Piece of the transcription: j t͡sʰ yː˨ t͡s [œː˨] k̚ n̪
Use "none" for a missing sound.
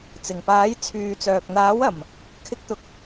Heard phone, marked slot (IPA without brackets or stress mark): œː˨